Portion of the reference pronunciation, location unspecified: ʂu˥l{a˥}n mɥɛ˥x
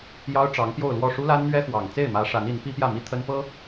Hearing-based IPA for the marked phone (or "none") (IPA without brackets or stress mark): a˥